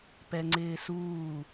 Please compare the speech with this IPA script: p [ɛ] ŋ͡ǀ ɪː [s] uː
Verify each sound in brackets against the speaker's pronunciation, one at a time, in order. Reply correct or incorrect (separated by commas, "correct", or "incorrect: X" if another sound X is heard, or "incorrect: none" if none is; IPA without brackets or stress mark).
correct, correct